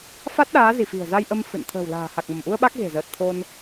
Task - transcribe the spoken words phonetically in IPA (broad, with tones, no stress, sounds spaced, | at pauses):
f a˦˥ t̚ ɗ aː˨˦ z i˧˩ f i̤˨˩ ə̯ z a˧ j ʔ ə˧ m f ɨ̰˧˨ n t̪ʰ ə̤ː˨˩ w l a̤ː˨˩ h a˨˩ k̚ m ə˧˩ m ʔ u˧ ə̯ ɓ a˦˥ k̚ ɣ e̤˨˩ z əː˨˩ t̚ t̪ʰ o˧ n